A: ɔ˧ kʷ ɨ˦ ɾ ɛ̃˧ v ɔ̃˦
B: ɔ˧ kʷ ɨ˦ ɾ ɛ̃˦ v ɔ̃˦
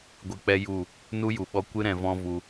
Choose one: A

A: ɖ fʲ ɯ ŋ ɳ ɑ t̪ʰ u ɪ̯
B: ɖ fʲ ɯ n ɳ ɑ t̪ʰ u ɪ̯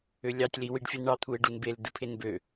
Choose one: B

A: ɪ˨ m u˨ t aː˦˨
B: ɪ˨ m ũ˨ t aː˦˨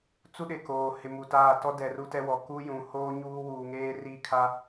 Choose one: A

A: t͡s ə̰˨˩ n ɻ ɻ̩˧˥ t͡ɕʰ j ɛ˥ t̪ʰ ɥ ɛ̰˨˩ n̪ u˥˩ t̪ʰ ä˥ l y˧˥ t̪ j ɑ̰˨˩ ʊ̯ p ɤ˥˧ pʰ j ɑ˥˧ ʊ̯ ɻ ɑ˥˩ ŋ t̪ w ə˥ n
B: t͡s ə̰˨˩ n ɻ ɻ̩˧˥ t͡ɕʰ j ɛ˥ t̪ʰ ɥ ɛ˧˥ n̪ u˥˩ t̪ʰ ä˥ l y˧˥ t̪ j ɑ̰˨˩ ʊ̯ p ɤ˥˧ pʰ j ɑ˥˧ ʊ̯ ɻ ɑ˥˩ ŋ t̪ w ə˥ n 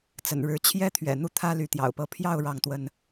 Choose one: A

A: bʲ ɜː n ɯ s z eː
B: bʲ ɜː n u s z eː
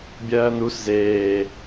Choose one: B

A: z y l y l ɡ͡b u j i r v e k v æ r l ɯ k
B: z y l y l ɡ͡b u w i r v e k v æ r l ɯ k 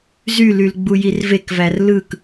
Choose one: A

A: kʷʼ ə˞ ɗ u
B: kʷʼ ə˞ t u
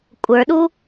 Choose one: A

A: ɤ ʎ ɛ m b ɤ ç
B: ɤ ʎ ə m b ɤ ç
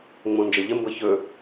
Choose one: B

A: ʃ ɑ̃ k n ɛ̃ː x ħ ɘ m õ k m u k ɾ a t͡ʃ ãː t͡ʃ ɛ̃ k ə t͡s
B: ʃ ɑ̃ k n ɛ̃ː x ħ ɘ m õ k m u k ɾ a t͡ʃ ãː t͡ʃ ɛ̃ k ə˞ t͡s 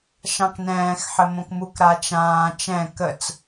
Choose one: A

